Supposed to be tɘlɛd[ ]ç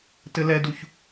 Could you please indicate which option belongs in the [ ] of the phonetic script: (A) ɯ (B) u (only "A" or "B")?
B